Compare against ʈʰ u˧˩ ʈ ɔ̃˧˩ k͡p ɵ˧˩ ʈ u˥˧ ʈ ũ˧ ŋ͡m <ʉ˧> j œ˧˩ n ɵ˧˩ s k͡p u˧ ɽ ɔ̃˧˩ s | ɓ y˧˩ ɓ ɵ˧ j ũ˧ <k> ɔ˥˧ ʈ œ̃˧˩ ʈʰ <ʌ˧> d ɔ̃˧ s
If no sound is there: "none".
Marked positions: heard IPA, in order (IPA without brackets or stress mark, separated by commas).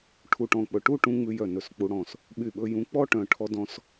ʉ˧, k͡p, ɔ˧